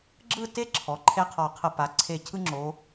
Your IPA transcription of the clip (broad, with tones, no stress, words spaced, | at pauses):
ɡ͡ǁɯ˥˧te˥˧ǁʰɔ˩˧ǃʰe˧ qʰɒ˧˩qʰə˧˩pa˩˧ ǀʰe˧˩cʰɯ˥ŋ͡ǁo˩˧